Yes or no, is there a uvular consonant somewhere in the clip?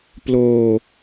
no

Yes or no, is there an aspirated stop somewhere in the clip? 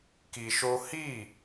no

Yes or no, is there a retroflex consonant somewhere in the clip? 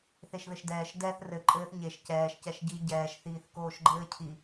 no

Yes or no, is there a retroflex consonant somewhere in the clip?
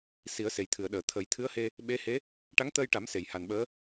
yes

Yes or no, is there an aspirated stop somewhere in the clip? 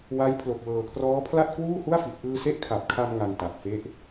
yes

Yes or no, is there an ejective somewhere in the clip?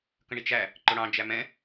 no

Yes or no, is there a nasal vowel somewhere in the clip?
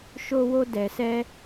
no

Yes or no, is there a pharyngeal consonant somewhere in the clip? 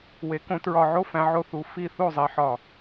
yes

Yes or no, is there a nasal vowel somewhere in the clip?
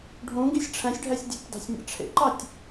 yes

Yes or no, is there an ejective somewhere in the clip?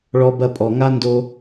yes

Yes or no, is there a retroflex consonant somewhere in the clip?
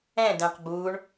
yes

